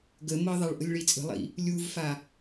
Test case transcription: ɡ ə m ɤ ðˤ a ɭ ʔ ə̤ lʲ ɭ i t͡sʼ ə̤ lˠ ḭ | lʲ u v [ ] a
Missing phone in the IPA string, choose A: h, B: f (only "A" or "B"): B